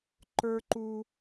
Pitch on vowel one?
high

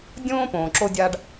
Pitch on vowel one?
high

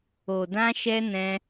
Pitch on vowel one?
low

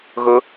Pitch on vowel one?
high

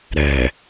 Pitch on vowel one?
low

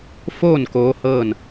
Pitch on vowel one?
falling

